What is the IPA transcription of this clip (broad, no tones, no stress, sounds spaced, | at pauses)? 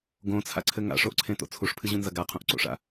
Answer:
ɡ õ t͡sʰ a̰ ǀʰ ɘ ŋ a̰ ʂ o ʔ ǀʰ ẽ t o̰ t͡sʰ u ʂ pʰ ɨ ʑ ũ n z ɐ ɡ a qʰ ũ ʔ ǀ o̰ ʂ a̰